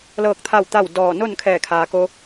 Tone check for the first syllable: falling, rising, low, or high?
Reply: falling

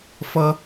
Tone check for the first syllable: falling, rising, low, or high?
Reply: high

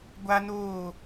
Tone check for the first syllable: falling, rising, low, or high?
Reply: high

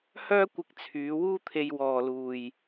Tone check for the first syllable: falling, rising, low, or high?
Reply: high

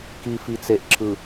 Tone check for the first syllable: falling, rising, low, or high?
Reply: low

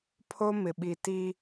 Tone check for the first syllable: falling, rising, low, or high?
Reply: high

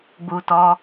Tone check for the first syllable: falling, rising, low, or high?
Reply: low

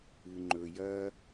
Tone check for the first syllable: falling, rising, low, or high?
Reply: low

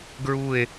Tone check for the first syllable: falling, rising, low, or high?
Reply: falling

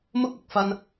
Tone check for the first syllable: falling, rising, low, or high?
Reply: high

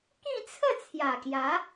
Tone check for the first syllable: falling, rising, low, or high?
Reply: falling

